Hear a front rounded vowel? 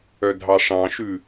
yes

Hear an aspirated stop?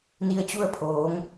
yes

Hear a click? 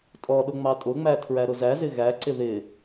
yes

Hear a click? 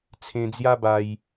no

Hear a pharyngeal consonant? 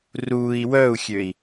no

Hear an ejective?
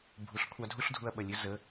no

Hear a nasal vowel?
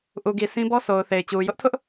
yes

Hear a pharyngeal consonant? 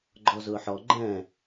yes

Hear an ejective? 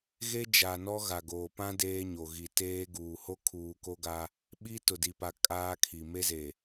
yes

